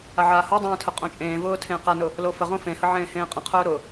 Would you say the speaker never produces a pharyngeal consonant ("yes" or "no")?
no